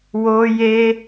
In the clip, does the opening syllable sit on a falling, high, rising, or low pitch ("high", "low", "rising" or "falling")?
high